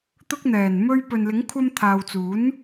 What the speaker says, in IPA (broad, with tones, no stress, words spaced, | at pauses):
t̪ʊ˧k̚n̪ɛː˨˩nmɵ˧ɥ pɵ˨nlɪ˨˥ŋkʷʰɐ˧m t̪ʰaː˨wt͡suː˨˥n